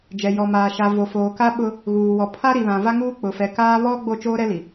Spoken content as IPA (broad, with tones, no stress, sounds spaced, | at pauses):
d͡ʒ ɛ˨ j ɔ˨ m aː˨ ʃ a˨ v o˨ f oː˨ k a˦ ɓ ʊ˦ | ɣ uː˨ w ɔ˨ pʰ a˦ ɾ i˨ β ã˨ v a˦ ŋ uː˦ k͡p ʊ˨ f ɛ˨ k aː˦ β ɔ˦ ɡ͡b o˦˨ t͡ʃ oː˦ ɾ ɛ˦ l i˨